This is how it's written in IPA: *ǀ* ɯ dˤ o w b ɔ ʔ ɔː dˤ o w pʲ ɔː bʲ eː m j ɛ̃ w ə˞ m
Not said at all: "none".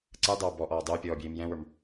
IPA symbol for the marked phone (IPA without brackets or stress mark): ǀ